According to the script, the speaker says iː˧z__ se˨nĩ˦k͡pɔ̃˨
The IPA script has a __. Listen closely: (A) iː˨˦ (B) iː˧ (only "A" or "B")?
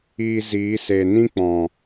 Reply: A